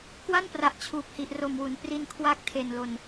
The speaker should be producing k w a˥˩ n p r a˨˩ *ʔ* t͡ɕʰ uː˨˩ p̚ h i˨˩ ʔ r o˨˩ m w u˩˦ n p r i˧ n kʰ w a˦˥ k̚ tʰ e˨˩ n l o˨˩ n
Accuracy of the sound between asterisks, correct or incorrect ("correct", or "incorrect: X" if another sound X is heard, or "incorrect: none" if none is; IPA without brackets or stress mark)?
correct